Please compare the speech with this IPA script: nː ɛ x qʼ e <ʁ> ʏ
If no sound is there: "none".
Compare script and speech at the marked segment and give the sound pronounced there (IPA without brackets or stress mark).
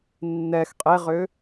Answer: ʁ